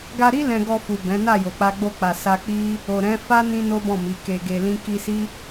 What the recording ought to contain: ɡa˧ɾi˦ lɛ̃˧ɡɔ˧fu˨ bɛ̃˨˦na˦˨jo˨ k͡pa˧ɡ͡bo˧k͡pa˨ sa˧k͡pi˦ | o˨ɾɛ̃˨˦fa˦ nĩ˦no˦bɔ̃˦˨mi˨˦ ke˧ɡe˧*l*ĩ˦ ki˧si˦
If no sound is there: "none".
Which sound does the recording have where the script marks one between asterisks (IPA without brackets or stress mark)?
l